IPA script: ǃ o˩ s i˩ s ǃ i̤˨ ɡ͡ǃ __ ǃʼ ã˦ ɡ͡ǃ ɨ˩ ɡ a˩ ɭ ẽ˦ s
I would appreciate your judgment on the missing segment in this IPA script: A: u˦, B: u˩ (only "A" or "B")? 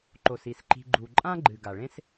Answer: B